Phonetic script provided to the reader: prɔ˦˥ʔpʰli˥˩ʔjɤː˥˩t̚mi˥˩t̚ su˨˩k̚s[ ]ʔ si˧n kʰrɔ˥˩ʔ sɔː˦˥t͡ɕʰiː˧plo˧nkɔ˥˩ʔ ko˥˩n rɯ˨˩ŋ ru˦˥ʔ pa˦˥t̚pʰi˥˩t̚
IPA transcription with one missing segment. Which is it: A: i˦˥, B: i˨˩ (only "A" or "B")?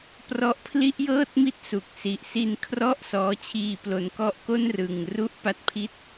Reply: B